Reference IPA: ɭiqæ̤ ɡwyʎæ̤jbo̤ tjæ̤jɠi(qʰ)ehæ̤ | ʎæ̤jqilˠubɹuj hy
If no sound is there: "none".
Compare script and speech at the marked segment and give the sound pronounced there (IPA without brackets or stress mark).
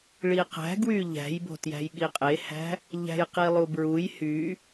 qʼ